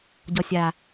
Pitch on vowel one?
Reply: low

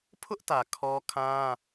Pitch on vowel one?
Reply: high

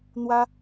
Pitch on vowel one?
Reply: high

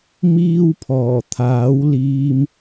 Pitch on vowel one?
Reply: high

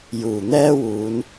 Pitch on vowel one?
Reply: low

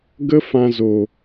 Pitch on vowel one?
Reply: high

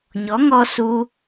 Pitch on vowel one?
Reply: rising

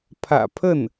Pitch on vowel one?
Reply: low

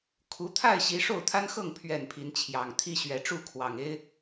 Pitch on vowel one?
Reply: rising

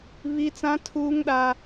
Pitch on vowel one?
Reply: high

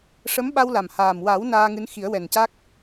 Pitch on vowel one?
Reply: rising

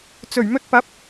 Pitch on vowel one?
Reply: low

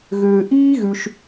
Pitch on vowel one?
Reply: low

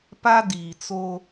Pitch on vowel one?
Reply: high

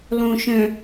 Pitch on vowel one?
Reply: low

